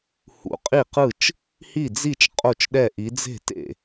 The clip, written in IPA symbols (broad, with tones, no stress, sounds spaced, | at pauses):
h ṵ˨˥ qʼ i˥˩ q ɯ˥˩ t͡ʃ | h i˥˩ d͡z i˥˩ t͡ʃ qʼ o˥˩ t͡ʃ ɗ ɛ˥˩ ʔ i˨˥ d͡z e̤˥˩ t ḛ˥˩